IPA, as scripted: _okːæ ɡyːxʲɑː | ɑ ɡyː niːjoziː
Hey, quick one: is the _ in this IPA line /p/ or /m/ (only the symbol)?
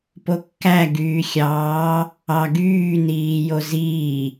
p